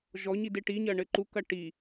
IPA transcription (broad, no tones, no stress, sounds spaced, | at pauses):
ʒ ɔ ɲ i d e ʈ i ɲ ɐ ɳ ɘ ǃ u k ɐ ʈ i